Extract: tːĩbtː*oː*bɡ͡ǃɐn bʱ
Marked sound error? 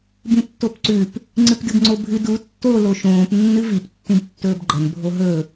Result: yes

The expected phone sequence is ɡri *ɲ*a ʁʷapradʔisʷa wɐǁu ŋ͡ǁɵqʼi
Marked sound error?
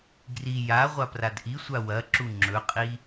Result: yes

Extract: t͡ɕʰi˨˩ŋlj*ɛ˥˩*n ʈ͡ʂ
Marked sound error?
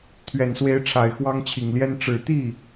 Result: yes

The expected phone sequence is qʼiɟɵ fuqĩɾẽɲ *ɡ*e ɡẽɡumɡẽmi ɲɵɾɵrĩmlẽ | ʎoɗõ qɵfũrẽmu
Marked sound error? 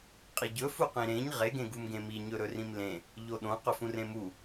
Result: yes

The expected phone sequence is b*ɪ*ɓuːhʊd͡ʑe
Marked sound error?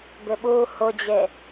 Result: no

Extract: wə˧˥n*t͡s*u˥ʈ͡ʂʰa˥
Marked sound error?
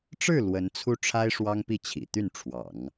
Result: yes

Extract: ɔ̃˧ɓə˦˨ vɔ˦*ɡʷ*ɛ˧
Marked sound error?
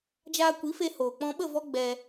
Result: yes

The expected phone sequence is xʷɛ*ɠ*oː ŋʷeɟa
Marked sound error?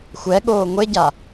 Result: no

